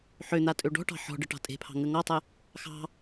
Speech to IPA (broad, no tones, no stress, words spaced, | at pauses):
ħøn̪a tʼøɖɔ̤ʈɑ̤ ħɔ̤ɖə ʈɑ̤tʼe̤pʰɑ̤ ŋəŋɔtˤə | xɑ̤